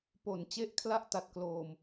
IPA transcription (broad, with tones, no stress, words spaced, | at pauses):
po˨˩nt͡ɕe˦˥ʔ kʰla˥˩ʔta˨˩t̚kloː˨˩m